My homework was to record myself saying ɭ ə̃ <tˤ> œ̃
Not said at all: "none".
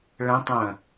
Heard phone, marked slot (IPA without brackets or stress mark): tˤ